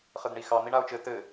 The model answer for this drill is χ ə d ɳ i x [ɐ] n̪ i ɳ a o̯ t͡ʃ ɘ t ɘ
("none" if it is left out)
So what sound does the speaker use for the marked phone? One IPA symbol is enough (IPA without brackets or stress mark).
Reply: ɑ